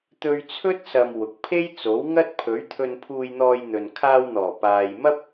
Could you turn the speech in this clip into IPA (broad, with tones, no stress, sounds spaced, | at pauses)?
t̪ ɵ˧ ɥ t͡sʰ ɵ˥ t̚ s ɐ˨ m w ʊ˨ k̚ pʰ e˥ j t͡s o˨˥ w ŋ ɐ˥ t̚ pʰ ɵ˨˥ ɥ t̪ʰ ɵ˧ n pʰ uː˧ j n̪ ɔː˧ j n̪ ɵ˨ n kʰ aː˧ w n̪ ɔː˨˩ p aː˨ j m ɐ˥ p̚